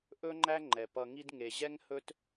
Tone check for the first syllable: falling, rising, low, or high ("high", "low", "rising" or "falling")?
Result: high